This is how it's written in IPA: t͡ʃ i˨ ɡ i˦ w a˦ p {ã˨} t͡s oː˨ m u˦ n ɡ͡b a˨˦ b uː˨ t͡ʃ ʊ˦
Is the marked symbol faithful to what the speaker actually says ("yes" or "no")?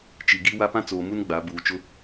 no